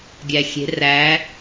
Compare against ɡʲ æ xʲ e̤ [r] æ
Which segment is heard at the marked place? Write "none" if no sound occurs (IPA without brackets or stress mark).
r